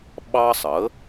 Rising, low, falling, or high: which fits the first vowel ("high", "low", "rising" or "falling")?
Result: high